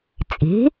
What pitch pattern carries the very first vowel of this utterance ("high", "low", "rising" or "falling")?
rising